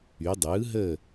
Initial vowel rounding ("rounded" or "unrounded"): rounded